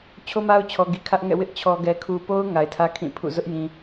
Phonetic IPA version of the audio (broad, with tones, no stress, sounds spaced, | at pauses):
t͡ɕʰ o˦ m a˦ ʊ̯ t͡ɕʰ ɔ˨ ɡ i˨ kʰ ä˦ ʔ ŋ ɛ̰˦˨ w ɪ˦ ʔ t͡ɕʰ ɔ˨ ɡ ɛ˨ kʰ u˨ p o˦ ʊ̯ ŋ a˨ ɪ̯ tʰ ä˦ kʰ ĩ˦˨ pʰ ṵ˦˨ z ʊ˦ ʔ j ĩ˨